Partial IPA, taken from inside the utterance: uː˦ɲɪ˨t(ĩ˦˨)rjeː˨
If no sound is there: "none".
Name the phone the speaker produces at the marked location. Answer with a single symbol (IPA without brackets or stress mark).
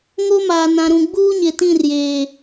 ĩ˦˨